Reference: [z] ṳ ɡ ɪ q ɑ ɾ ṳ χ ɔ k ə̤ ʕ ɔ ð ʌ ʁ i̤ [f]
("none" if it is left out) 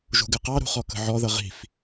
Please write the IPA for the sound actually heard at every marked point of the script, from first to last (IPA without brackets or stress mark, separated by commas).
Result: ʒ, f